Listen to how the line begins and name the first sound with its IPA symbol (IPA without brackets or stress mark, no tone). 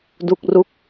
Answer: d